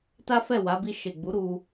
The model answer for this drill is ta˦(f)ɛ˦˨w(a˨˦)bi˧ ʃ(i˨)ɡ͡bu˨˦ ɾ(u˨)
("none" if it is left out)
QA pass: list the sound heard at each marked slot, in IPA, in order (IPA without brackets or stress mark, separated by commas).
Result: f, a˨˦, e˨, u˧